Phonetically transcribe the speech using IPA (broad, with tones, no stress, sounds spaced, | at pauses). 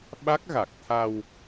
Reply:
ɓ a˦˥ k̚ ɣ a˨˩ k̚ t̪ʰ a˧ w